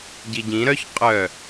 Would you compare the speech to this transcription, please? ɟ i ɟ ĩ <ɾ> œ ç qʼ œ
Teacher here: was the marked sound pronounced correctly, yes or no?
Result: yes